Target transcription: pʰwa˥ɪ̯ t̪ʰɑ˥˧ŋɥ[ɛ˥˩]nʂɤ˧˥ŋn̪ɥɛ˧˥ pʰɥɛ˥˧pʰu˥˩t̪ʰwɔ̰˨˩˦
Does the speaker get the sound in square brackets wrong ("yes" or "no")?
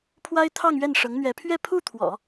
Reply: no